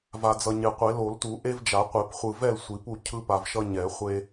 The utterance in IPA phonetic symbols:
v a˨ d͡z ʌ˨ ɲ e˨ qʷ e˨˩˦ l o˨˩˦ l t u˨˩˦ ʔ e˦ v d͡ʒ a˨˩˦ qʷ e˨˩˦ p χʷ ɯ˨ v ɛ˥˨ l sʷ i˨˩˦ p u˥˨ cʰ ɯ˦ p a˨ v ʃ ʌ˦ ɲ ɛ˨˩˦ χʷ e˦

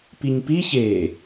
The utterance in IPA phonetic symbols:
p i ɲ p i ç e

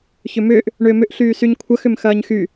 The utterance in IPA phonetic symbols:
ç ʏ m ʏː ʔ | ɳ ʏː m ʏ ʔ ɬ yː s y ɲ kʷʰ ɐ x ʏ m x ɐː ɲ x y

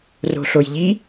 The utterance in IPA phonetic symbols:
r o̤ ɬ o j ʎ i

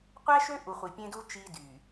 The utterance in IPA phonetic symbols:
qʷ æ˦ ʃ ø˦ ʔ u˨ χʷ i˨ pʲ ẽ˦ d u˦ t͡ʃ i˦ d y˨

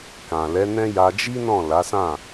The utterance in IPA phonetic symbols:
k ã˨ l ɛ˨˦ n ɛ̃˦ j a˧ d͡ʒ i˦ n ɔ̃˦˨ l a˨˦ s ã˦˨

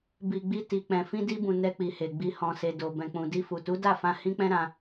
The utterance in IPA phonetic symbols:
b i˨ ɡ͡b i˧ t i˨ k͡p ɛ̃˨ f ĩ˧ d i˧ b ũ˨ n ɛ˧ k͡p i˨ h e˨ ɡ͡b i˨ h ɔ̃˨ s e˨ d o˨ b ɛ̃˨ k͡p ũ˨ d i˧ f u˨ t u˨˦ d a˦˨ f ã˧ h ĩ˦ k͡p ɛ̃˦ ɾ ã˧

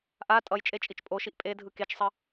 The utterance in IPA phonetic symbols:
ʔ a tʼ ʌ j t͡ʃʼ e t͡ʃʼ i t͡ʃ pʼ o ʃ i ʔ pʼ e dʱ ɯ k e t͡ʃ sˤ ʌ

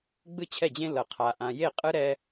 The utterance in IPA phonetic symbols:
ɡ͡b ɯ˦ t͡ɕʰ ɛ˦˨ d͡ʑ ẽ˦ l ʌ˨ qʰ a˨ ʔ ã˨ j e˦˨ qʼ ɯ˦ ɾ ɛ˦

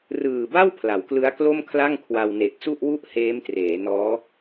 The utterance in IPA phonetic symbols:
r ɯː˨˩ b a˥˩ w pʰ l a˩˦ w k l ɯ˦˥ a̯ k l o˥˩ m kʰ l a˥˩ ŋ kʰ w a˧ w n e˨˩ k̚ s u˥˩ ʔ w u˥˩ ʔ h eː˦˥ m t r eː˩˦ n ɔː˦˥

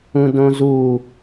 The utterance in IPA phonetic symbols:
ũ d õ z u

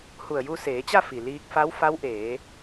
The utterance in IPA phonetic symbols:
h u˧˩ ə̯ j u˧ s eː˩˧ t͡ɕ a˥˨ f i˩ l iː˧ k̚ f a˧˥ w f a˧˥ w ʔ eː˩˧

